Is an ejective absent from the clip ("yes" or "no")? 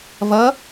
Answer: yes